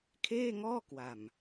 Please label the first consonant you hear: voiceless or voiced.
voiceless